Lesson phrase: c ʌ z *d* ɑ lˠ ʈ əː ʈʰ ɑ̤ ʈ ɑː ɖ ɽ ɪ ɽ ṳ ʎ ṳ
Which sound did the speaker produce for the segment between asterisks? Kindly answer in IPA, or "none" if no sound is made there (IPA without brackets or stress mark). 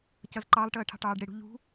ǃ